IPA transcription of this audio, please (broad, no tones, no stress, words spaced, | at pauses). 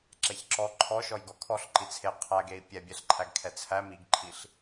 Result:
ǁɛçǁɔ ǃʰɔ ʃɔjɡɔkʰɔɬ ǃit͡sʰe qʰæɡei̯ pʲɛbʲɛɬǃʰæɡ kʰɛt͡sʰæ miɡǃʰiɬ